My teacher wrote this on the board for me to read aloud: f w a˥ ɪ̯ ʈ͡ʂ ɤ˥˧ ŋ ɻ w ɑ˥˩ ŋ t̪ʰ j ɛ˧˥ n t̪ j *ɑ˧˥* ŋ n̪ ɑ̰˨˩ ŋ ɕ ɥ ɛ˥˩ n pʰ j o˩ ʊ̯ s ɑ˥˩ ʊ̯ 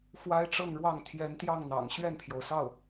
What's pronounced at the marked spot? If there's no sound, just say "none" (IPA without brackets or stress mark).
ɑ˥˩